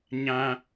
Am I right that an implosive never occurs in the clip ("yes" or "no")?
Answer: yes